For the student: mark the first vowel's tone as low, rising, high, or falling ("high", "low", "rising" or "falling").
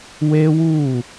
high